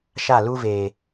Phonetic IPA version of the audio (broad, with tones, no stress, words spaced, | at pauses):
ʃa˦˨lu˦veː˨